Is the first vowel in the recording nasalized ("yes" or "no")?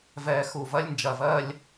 no